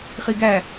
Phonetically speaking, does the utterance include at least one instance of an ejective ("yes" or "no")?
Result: no